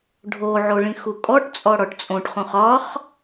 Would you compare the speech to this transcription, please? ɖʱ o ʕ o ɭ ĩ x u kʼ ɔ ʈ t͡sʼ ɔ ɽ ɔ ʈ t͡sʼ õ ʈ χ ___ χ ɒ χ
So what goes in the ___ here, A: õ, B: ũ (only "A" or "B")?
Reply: B